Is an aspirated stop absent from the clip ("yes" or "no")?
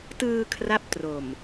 no